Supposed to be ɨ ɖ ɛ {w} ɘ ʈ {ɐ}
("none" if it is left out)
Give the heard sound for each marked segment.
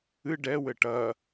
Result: w, ɐ

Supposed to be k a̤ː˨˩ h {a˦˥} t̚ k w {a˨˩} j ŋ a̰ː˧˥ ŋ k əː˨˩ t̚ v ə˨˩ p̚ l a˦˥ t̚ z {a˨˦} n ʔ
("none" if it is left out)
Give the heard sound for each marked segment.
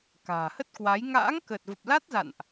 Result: ə˦˥, a˨˦, a̰˧˨

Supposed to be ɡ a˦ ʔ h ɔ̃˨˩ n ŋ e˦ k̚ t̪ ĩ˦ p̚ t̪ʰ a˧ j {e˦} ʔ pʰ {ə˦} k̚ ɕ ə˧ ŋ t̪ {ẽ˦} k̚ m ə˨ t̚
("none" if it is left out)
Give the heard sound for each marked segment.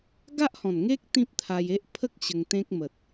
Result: e˦, ə˦, ẽ˦

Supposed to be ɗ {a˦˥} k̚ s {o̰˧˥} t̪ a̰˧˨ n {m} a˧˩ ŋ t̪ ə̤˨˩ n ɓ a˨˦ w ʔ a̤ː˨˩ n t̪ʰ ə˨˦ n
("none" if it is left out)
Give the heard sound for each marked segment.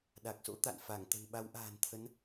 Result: a˨˩, o̰˧˥, f

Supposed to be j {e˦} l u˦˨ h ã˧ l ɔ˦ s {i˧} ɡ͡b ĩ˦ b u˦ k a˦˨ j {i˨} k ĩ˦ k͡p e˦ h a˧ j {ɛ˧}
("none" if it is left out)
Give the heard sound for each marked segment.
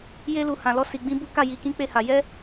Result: e˦, i˧, i˧, ɛ˦

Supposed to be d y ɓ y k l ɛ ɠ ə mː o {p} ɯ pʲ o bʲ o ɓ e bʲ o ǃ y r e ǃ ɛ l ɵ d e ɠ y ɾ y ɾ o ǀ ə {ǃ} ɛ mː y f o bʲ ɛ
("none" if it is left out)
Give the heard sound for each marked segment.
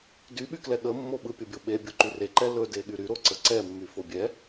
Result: ɓ, ǀ

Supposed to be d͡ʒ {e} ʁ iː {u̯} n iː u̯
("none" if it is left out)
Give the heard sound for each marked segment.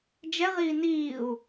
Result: ɛ, none

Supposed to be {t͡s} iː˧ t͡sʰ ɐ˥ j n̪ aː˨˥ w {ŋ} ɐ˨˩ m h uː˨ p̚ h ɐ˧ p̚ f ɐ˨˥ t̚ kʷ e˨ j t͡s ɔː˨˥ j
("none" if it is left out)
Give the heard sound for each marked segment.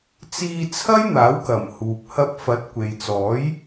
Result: t͡s, k

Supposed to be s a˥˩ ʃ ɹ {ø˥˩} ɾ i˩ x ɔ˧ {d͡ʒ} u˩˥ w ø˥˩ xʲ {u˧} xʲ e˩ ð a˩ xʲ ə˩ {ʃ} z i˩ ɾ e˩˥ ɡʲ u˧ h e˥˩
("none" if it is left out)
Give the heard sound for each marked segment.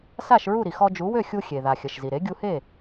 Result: u˥˩, d͡ʒ, u˧, ʃ

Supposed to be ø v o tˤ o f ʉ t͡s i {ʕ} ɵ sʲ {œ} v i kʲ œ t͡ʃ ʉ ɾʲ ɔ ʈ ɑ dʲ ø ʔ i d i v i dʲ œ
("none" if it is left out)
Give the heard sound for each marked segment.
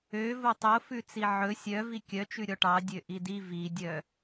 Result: ʕ, œ

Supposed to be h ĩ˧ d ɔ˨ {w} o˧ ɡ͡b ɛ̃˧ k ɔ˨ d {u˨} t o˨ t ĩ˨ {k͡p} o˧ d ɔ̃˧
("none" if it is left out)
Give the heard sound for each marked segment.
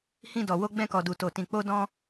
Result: w, u˨, k͡p

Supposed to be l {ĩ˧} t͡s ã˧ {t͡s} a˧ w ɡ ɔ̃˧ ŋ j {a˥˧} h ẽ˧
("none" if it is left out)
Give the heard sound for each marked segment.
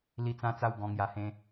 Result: i˧, t͡s, a˧

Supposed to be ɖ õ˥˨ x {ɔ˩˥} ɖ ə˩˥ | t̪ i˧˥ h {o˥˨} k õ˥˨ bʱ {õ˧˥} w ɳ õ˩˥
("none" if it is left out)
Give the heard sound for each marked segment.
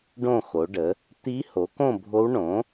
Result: o˩˥, o˩˥, o˧˥

